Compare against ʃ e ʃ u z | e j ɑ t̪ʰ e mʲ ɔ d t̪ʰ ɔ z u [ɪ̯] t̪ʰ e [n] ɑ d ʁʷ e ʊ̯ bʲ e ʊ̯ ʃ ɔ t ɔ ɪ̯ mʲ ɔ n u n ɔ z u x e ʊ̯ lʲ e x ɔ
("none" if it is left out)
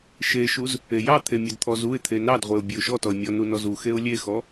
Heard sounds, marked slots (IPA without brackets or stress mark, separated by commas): ɪ̯, n